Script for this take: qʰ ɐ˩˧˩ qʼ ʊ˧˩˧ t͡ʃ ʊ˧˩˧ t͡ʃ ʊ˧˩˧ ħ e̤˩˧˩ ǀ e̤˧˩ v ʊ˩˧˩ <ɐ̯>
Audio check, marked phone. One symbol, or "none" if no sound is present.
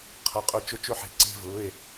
e̯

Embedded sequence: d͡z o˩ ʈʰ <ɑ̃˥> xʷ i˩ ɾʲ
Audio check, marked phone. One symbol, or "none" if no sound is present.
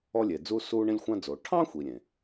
ɑ̃˥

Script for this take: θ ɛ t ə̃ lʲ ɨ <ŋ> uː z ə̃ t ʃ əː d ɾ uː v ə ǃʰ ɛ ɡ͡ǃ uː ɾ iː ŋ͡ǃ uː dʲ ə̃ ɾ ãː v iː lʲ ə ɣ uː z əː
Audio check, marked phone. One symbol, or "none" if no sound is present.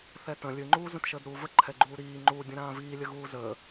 ŋ͡ǃ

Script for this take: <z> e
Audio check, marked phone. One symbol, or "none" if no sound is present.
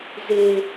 z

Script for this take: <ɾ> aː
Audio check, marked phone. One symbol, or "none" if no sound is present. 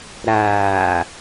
ɾ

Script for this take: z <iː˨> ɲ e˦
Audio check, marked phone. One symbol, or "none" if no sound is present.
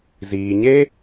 iː˨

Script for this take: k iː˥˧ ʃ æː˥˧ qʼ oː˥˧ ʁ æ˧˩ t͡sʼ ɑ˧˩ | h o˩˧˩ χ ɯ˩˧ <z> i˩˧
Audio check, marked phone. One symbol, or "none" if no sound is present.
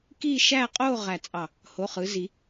z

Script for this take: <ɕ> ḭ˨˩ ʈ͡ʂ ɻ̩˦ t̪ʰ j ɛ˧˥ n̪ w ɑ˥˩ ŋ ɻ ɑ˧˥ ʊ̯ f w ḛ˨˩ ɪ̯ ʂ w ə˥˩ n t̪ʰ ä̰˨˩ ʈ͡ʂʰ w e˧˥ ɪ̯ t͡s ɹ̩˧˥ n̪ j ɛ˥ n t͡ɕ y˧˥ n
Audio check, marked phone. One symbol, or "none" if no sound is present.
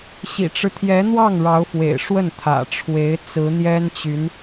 ɕ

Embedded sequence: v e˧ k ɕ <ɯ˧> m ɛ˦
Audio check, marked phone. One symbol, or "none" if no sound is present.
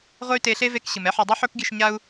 ɯ˨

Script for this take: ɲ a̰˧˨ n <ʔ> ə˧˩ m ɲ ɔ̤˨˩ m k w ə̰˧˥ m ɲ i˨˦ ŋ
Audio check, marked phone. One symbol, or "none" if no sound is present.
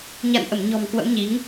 ʔ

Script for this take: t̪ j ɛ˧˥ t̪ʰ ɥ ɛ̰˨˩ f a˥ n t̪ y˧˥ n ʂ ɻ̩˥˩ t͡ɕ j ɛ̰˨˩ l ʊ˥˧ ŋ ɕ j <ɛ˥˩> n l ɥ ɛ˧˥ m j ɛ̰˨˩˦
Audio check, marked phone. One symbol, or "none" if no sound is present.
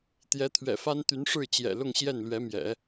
ɛ˥˩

